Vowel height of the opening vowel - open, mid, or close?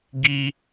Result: close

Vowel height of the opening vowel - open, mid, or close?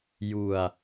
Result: close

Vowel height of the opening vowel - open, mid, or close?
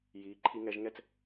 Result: close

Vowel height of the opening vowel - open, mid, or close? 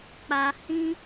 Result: open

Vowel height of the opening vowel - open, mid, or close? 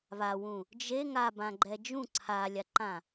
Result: open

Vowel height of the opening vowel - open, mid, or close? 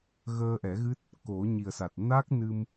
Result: mid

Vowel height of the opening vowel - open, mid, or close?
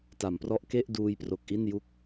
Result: open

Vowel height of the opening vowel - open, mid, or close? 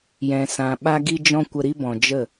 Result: mid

